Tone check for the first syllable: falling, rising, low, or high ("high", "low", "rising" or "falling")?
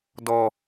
low